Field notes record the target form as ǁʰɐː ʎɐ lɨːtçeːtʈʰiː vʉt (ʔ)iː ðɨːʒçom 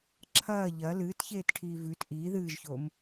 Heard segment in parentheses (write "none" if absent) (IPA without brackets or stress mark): ʔ